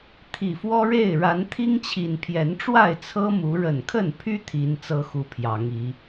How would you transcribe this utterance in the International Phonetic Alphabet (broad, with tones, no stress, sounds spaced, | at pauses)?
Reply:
t̪ʰ i˨˩ f w ɔ˦ ɻ e˥˨ ɪ̯ ɻ a˨˦ n t̪ʰ i˦ ŋ t͡ɕʰ i˨˩ n pʰ j ɛ˨˦ n ʈ͡ʂ w a˥˨ ɪ̯ t͡sʰ ɤ˦ m u˨˦ ɻ ə˨˩ n kʰ ə˥˨ n pʰ y˦ t̪ʰ i˨˦ n t͡s ɤ˦ x u˦ pʰ j ɑ˨˦ ŋ i˨˦